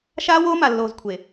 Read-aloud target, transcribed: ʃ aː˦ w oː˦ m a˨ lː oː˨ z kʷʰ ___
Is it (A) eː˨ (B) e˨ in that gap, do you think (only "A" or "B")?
B